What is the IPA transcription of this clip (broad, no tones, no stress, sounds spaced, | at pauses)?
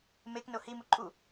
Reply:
m e k n o h i m u ǃʼ u